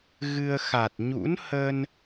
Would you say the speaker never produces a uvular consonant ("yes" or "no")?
yes